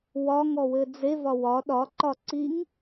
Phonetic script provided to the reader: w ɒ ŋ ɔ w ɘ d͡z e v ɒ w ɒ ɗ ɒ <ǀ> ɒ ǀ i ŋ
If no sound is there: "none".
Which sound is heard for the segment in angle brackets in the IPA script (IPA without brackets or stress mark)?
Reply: ǃ